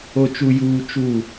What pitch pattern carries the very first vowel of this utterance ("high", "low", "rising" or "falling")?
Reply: low